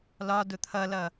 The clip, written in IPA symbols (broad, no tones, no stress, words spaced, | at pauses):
lɒdʊ t̪ʰʌlʌ